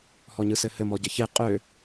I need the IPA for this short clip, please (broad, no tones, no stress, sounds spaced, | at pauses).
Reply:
h ɔ ɲ ɯ s ɘ h ɘ m ɔ ɟ ɘ ç e qʼ ø